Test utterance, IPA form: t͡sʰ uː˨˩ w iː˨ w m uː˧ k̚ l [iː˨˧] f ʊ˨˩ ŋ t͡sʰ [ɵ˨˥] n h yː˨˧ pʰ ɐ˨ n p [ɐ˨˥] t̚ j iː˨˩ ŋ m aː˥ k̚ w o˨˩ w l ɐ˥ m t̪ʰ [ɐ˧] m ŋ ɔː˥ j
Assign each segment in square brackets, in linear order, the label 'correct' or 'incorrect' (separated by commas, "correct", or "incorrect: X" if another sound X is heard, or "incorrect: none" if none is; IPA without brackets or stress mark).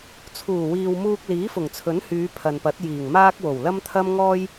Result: incorrect: iː˨˥, correct, correct, incorrect: ɐ˥